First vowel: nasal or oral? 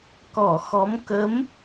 oral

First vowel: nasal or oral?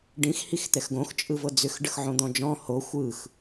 nasal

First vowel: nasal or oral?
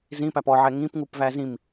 nasal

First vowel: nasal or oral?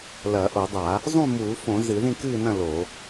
oral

